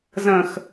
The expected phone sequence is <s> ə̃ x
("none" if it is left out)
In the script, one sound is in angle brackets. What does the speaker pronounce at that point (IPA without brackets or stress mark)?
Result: z